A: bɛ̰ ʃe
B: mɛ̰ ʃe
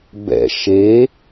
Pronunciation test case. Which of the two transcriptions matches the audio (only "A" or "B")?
A